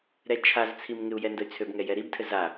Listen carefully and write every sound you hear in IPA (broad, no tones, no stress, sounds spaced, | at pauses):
ɾ ɛ t͡ʃʰ a z t͡sʰ i m ŋ ɪ u̯ j ɛ n d ə y̯ t͡sʰ ø b ŋ ɛ j ɛ ɾ i b tʰ ɘ z a